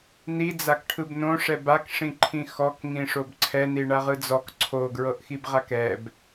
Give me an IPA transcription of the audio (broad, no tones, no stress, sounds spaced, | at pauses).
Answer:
n i d͡z a k ʈʰ ɯ b n õ ʂ ɛ b a k ʂ ĩ ǃʰ ĩ x ɔ k ŋ ĩ ʂ o b ǀʰ ɛ n i ɳ a ʁ ɯ d͡z ɔ k ǀʰ o ɡ ɹ ɤ ʔ x i b ʁ a k ɛ b